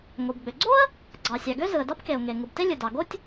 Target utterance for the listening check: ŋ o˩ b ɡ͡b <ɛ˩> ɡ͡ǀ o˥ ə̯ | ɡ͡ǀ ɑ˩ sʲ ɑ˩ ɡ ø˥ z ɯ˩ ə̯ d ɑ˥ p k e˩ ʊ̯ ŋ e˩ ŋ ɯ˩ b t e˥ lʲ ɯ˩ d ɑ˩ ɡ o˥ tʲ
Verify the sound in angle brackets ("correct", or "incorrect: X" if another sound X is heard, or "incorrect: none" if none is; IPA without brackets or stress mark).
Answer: incorrect: ø˩